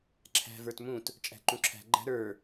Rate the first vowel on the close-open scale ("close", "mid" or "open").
open